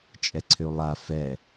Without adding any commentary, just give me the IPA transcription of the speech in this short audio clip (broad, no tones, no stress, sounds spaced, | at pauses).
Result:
t͡ʃʼ ɛ ǀʰ ʏ u̯ lˠ a f ɛ